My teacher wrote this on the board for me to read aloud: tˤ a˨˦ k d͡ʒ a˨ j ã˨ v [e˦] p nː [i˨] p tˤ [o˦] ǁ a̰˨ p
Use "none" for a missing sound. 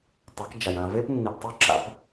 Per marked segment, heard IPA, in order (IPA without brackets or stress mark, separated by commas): e˦, i˨, o˦